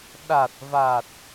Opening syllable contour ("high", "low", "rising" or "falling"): low